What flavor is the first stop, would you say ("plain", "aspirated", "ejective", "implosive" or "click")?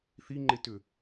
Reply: click